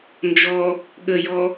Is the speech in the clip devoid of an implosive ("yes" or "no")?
no